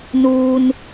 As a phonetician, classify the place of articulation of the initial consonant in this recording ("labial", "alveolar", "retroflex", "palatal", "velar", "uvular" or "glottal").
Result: alveolar